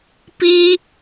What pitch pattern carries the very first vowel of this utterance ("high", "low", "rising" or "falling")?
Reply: high